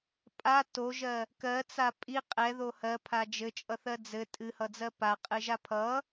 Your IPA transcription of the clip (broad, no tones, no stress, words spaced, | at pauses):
pʼa toʒɜ | kɜt͡sa pʼi qʼɛðo hɜpʰa d͡ʒɘt͡ʃʼʌθɜ d͡zɘ tʼɨhʌd͡zɜ paqʼɨʒa pʰʌ